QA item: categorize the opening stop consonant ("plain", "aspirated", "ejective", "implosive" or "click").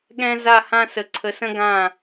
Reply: implosive